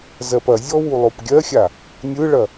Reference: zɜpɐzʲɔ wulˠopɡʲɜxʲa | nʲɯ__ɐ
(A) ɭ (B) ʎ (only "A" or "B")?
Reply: A